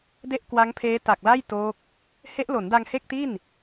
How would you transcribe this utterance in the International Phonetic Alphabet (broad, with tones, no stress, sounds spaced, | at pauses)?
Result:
d e˥˩ ʔ k w a˦˥ ŋ pʰ eː˦˥ t a˨˩ k̚ l a˥˩ j t oː˦˥ k̚ | h e˦˥ ʔ l o˩˦ n d a˧ ŋ h e˥˩ k̚ t i˥˩ n